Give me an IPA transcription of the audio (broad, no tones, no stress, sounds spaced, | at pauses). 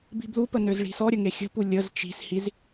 b i̤ b l u p ə n ø z ɭ i̤ s ɔ ɾʲ ə ŋ e xʲ ə̤ p u lʲ ə z t͡ʃ i̤ s h i z